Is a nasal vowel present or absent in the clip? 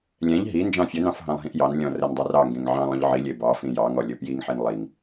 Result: present